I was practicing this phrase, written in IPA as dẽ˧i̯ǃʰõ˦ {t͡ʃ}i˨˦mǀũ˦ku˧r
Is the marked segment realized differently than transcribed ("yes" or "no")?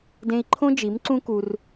yes